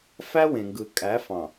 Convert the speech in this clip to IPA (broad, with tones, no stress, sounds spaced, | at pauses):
f æ˦ w ẽ˨ ŋ ɡ ɯ˨ kʼ æ˨˦ f ɑ̃˨